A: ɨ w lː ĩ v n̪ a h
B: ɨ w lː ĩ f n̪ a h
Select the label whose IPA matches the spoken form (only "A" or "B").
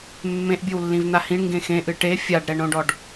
A